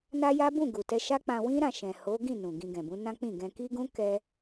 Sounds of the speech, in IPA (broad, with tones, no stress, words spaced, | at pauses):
na˦ja˦ bũ˦˨ɡu˨tɛ˧ ʃa˦k͡pã˧ wĩ˦ɾã˦˨ ʃɛ̃˨ ho˨˦ɡĩ˦˨ nũ˨ɡĩ˧ ɡɛ̃˨bũ˨˦nã˦k͡pĩ˦˨ ɡɛ̃˧ki˦ɡũ˦ kɛ˦